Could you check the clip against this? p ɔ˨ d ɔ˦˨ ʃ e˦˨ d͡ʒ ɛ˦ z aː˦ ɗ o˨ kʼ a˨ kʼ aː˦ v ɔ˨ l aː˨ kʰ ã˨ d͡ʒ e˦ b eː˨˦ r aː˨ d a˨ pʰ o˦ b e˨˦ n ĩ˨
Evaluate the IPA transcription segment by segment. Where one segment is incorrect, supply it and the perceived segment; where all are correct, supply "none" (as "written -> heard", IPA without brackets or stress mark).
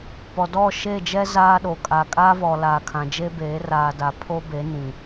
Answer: none